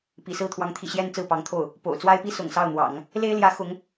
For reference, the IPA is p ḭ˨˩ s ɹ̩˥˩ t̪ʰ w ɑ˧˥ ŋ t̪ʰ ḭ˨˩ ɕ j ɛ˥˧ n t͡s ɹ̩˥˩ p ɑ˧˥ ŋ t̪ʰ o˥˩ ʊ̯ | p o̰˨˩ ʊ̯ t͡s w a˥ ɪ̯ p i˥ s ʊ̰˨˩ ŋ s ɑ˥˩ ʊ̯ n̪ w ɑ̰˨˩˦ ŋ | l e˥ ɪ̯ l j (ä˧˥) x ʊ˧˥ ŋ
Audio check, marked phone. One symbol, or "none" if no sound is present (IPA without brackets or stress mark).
ä˧˥